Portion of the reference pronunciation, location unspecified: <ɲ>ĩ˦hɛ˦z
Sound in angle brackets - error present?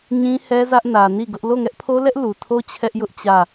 no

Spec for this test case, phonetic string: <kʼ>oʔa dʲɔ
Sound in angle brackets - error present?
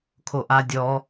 yes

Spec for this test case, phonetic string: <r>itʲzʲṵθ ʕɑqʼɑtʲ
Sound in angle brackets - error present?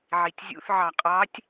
yes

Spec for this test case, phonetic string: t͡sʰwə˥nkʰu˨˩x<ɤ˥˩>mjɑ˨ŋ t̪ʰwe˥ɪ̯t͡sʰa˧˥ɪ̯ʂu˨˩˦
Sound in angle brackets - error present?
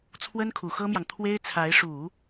yes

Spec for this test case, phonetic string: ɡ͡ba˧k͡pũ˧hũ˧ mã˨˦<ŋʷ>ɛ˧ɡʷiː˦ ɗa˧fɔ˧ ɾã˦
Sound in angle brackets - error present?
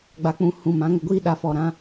yes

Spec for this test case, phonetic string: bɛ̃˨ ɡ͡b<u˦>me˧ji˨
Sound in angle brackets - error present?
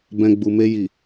yes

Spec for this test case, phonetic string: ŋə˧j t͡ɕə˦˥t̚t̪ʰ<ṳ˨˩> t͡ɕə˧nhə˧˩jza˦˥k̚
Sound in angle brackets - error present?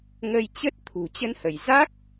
no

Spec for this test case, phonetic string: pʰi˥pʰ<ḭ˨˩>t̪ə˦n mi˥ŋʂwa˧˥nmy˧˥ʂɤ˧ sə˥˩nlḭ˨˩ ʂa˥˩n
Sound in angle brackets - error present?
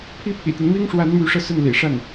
no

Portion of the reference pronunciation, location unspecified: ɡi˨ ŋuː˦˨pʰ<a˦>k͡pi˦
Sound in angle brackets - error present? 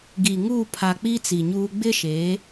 yes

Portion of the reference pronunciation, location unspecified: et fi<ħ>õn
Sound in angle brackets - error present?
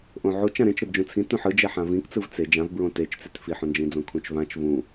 no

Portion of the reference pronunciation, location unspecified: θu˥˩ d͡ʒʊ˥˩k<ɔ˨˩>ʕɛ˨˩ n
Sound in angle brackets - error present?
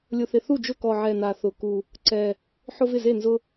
no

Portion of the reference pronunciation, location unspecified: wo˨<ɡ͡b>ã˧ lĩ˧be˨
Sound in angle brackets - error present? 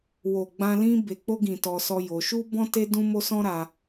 no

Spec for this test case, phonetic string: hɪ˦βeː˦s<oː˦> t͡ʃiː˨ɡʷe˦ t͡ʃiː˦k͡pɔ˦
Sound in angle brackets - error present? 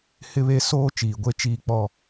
no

